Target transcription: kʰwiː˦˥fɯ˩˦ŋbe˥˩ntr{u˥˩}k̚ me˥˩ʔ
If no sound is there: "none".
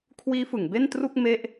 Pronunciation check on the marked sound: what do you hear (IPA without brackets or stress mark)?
u˥˩